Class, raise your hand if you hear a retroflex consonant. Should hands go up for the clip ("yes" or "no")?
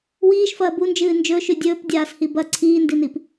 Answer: no